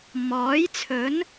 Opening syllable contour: rising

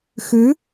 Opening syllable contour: rising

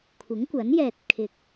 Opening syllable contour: rising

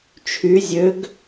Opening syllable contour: rising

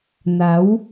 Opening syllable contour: rising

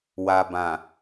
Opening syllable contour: low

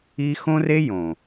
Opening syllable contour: high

